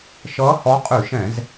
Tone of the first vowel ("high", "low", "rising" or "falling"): rising